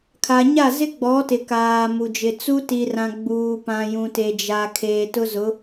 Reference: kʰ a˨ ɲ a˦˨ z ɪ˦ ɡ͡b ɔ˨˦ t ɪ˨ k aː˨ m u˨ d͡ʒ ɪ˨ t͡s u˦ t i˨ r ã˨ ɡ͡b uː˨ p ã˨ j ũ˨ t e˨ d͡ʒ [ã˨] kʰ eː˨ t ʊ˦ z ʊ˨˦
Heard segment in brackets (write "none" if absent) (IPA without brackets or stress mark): a˨